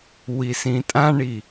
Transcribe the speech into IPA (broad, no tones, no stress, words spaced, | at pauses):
wisĩtʼãɳi